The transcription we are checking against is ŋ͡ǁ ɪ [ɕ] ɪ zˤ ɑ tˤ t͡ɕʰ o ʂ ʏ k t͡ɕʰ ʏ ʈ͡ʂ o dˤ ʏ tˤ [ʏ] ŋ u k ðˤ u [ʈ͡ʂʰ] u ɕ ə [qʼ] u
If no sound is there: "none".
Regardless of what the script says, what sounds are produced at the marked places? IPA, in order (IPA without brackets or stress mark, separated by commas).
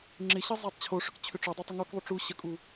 ɕ, ɪ, ʈ͡ʂ, kʼ